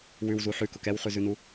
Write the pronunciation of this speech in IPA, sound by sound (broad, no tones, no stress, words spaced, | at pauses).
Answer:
wʉwzu ħʉkʊk ɛwχʉzʉnu